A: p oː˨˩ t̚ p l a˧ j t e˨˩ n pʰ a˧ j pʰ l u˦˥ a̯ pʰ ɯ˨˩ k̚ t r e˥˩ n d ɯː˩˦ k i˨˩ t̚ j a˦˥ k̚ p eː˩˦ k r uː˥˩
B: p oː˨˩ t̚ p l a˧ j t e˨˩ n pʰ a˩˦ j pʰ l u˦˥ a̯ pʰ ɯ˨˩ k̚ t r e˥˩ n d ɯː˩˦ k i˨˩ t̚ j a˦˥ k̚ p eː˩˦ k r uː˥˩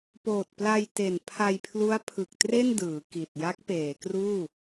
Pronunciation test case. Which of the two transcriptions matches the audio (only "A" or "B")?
A